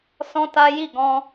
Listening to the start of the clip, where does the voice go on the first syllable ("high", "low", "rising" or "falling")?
high